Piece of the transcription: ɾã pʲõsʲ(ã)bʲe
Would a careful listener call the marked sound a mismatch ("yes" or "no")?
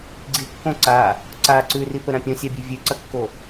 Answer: yes